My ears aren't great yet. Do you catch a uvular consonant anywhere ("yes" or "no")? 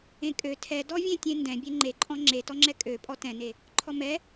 no